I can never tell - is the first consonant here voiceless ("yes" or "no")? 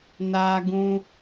no